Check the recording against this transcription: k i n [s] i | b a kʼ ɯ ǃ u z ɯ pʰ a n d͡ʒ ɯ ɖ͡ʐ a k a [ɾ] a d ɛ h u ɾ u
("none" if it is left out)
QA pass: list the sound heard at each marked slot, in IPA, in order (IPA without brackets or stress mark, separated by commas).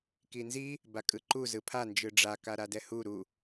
z, ɾ